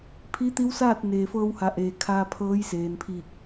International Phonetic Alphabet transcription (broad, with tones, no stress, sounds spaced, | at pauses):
pʰ i˧˥ t̪ i˧˥ w s aː˥˨ t̚ n eː˩ f ɤː˧ w h a˩˧ ʔ eː˩ kʰ aː˧ pʰ ɤː˧˥ j s eː˩ n pʰ iː˧˩ k̚